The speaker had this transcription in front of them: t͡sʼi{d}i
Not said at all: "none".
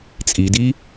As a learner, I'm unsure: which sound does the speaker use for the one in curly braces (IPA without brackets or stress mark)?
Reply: d